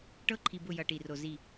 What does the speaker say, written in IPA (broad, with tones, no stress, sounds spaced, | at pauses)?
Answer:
ʈ ɤ˦ ǃʰ i˨ b ʊ˦˨ j ʌ˨ ʈ i˨ r o˨ z i˦˨